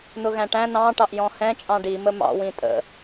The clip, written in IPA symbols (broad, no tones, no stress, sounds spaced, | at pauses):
n ʊ ɣ æ̃ ʈ æ̃ n ɑ̃ ʈ ɑ ʔ j ɔ̃ h ɛ̃ t͡ʃʼ ɑ̃ ɖ i m ə m ɑ̰ w ĩ tʼ ə̰